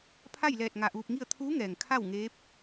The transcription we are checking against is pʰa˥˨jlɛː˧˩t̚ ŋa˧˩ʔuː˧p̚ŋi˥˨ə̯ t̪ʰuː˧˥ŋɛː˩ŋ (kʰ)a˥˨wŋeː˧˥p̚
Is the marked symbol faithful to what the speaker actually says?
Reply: yes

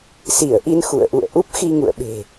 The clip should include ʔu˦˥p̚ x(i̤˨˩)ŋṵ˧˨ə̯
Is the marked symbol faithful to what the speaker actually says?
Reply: no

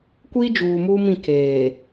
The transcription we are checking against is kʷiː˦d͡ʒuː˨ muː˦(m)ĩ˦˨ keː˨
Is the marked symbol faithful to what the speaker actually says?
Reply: yes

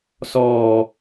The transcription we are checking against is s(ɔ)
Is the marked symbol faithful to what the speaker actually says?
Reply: no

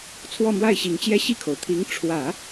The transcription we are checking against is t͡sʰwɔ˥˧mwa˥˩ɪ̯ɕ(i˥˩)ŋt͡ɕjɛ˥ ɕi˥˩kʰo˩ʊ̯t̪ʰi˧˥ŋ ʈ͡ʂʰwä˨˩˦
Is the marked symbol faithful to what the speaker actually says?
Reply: no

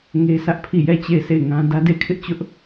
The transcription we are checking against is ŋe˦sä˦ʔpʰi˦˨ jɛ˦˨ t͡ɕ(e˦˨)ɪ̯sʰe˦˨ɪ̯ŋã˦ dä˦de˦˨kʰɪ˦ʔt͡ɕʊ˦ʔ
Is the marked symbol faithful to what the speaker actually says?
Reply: yes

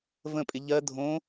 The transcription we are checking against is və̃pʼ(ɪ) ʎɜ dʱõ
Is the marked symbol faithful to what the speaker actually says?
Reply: yes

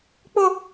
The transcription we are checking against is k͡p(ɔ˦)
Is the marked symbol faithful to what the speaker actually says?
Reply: no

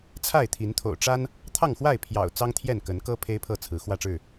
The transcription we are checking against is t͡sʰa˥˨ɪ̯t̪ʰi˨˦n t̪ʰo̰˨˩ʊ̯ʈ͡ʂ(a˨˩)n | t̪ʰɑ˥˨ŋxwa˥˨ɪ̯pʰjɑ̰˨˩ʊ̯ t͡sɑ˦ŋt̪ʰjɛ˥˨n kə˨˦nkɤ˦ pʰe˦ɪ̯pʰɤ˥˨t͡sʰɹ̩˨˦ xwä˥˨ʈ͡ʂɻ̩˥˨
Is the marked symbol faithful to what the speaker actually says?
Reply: no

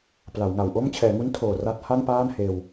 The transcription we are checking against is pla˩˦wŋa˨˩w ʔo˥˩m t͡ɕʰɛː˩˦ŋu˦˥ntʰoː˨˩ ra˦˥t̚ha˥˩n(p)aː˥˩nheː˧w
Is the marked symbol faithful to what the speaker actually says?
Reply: yes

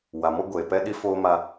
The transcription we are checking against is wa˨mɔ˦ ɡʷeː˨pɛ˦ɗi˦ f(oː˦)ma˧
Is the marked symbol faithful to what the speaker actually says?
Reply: yes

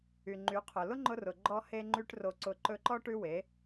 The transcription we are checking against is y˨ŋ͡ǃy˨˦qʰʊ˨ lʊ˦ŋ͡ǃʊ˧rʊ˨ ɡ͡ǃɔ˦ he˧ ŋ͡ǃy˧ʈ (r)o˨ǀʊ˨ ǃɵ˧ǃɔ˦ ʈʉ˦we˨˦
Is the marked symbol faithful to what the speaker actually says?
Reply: yes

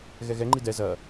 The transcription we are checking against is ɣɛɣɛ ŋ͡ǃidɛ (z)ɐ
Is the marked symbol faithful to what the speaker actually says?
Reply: yes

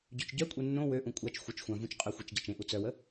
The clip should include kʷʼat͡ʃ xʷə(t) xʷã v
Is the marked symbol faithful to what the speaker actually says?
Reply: no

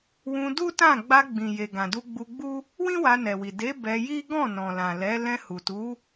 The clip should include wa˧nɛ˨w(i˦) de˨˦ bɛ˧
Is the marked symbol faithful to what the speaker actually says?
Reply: no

